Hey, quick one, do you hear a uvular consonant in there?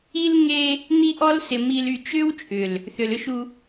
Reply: no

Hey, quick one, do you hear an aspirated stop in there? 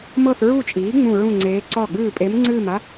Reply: no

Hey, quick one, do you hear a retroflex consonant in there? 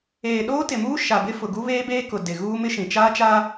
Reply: no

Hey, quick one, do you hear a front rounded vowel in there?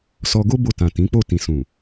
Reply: no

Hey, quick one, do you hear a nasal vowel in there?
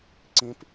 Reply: yes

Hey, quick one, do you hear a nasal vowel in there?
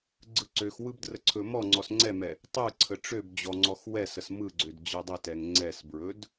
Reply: no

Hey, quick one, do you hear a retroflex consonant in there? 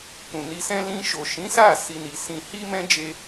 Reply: no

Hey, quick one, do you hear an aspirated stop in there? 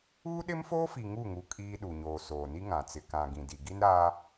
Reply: no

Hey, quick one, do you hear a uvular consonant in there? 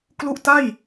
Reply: no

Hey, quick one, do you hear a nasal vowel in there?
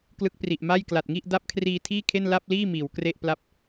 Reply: no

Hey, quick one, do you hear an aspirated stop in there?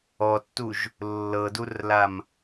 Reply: no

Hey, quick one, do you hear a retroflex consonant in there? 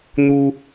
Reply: no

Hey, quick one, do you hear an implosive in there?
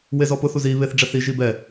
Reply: no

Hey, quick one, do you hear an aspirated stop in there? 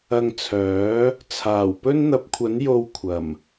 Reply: yes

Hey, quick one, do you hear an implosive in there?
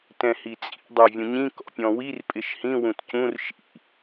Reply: no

